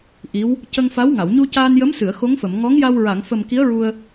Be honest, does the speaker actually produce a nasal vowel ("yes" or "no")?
no